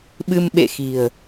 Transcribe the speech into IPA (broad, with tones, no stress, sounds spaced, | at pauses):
ɓ ɨ˧ m ɓ ḛ˧˨ x i̤˨˩ ə̯